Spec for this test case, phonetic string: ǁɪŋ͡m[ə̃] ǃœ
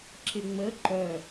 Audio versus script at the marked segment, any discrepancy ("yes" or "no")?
yes